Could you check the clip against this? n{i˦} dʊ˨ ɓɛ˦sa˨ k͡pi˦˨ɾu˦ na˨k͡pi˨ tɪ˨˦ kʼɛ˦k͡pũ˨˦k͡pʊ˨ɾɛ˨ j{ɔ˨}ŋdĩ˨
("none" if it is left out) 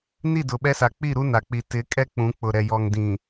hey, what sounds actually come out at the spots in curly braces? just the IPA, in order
i˦˨, ɔ˨

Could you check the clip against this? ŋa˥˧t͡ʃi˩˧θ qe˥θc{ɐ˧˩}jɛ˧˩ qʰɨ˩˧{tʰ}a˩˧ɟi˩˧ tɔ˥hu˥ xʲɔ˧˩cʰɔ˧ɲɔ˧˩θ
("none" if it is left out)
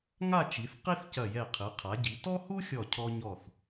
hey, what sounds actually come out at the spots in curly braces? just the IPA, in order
ɐ˧˩, qʰ

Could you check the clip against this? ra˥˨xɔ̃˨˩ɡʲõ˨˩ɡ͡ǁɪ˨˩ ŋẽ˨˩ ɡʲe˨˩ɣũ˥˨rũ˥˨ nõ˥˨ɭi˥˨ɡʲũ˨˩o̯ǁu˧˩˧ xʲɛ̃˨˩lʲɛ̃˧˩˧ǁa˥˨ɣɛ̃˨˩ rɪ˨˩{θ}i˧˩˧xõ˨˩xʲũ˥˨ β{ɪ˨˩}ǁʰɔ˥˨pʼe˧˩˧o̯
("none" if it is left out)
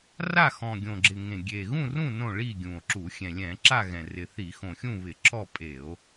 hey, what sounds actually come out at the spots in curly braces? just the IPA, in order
θ, ɪ˧˩˧

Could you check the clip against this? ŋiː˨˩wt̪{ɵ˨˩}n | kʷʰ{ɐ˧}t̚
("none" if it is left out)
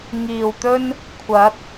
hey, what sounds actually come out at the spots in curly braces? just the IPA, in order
ɵ˥, ɐ˨˥

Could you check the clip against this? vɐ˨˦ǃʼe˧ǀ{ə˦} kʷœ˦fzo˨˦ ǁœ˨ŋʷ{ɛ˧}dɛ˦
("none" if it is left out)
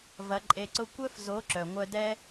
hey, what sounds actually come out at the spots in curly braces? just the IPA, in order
ʊ˦, œ˧

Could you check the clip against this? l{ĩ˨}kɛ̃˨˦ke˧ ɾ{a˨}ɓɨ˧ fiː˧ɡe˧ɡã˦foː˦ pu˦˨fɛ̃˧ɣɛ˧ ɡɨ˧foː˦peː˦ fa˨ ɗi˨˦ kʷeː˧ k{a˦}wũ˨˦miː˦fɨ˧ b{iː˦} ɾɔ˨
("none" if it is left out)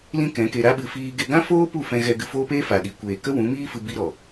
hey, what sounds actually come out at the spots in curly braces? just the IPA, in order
ĩ˦, a˦, ə˦, i˦

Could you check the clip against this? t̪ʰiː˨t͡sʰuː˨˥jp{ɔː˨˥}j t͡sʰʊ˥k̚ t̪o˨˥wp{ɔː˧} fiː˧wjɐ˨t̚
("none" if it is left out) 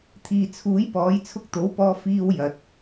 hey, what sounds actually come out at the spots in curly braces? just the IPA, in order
ɔː˨˥, ɔː˧

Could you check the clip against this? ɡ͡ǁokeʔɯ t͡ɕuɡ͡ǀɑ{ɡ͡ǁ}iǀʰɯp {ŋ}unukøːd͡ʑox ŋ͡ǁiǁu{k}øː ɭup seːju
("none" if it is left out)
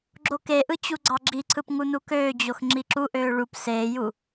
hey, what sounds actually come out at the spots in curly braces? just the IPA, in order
ɡ͡ǁ, ŋ, ʔ

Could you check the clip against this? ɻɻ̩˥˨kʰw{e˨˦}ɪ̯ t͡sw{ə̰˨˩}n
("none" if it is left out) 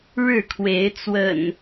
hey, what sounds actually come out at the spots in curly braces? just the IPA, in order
e˨˦, ə̰˨˩

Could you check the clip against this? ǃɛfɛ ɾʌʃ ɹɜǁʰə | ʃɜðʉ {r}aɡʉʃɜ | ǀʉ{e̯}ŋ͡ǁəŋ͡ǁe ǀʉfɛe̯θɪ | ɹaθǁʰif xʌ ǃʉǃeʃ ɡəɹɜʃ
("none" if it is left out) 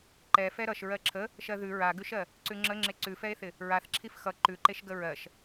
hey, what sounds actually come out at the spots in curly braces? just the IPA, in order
ɹ, none

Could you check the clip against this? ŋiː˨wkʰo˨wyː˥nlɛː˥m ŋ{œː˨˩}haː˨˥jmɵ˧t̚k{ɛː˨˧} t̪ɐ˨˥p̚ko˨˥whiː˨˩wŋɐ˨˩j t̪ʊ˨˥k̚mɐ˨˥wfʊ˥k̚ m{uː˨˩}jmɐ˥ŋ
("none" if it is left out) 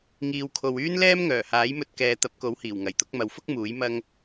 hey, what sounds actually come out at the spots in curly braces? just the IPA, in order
œː˨˩, ɛː˨˧, uː˨˥

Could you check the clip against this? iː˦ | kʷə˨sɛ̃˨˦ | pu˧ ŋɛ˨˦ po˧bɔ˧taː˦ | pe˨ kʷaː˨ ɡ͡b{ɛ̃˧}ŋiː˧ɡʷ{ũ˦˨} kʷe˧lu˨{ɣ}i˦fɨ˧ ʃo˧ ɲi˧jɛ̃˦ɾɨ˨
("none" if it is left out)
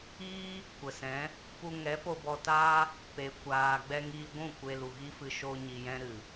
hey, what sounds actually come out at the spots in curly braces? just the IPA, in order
ɛ˧, ũ˦˨, ɣ

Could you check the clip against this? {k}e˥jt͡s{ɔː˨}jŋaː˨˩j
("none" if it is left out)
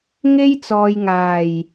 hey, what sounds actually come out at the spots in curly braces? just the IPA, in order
ŋ, ɔː˨

